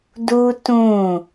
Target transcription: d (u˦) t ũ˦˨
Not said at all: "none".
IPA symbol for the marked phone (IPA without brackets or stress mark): u˦